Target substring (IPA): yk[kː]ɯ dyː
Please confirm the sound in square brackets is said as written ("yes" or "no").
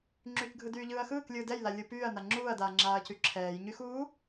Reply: no